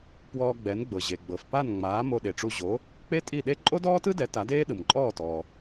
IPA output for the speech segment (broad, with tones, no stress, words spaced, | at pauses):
pwɔː˧ɡ͡bɛ˩˥nɡ͡bɤ˩ ʑe˩ ɡ͡bɤ˩fpa˥˩nŋ͡maː˩˥ mo˧ɗe˩ʈ͡ʂu˧ ʑo˩˥ | k͡pe˥tʼi˥˩ɗe˥ ǃʼo˥dɔː˥tɯ˥dɛ˩˥ ta˩˥deː˥ ɗɯ˩mǃʼɔː˥˩tɔː˩